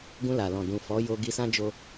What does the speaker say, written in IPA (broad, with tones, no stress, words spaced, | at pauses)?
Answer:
ɡũ˧la˨lɔ̃˨ dũ˨fɔ˨˦ jo˧ɡi˧sã˦d͡ʒo˦